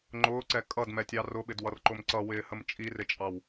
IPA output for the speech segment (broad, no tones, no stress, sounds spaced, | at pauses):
ŋ͡ǃ ʊː ǀ ɛ kʼ ʌ d m ɛ tʲ ɑ r ʊ ɓ ɪ d w ʌ r ǃ ʊ m ǀ ʌ w ɪː h ə m t͡ʃʼ i r ɪ t͡ʃʼ ɑ w